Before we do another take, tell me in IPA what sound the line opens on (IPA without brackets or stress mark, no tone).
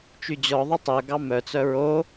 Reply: t͡ʃ